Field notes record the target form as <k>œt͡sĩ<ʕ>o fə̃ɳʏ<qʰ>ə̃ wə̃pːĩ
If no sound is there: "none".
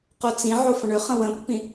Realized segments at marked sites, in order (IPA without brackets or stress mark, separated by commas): q, ʕ, χ